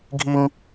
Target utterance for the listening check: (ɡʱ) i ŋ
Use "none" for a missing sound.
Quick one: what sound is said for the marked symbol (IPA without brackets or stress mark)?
ɡʱ